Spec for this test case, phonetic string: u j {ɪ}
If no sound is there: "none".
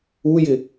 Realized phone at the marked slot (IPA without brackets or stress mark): ɪ